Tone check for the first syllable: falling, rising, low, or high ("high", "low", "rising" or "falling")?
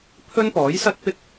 high